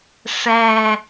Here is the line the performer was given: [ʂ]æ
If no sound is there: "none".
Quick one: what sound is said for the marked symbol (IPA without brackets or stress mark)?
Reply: ʂ